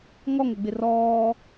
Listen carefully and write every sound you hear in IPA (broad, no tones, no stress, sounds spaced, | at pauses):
ŋ ɔ ŋ ə ɡ͡b ɪ r ɔː